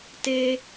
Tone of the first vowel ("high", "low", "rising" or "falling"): high